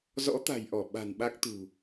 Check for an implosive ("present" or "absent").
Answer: present